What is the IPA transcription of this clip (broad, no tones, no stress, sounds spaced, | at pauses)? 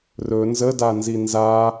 r ɵ n z ə d a n z i n z a